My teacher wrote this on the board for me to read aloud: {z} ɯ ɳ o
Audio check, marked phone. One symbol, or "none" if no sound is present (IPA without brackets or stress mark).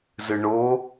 z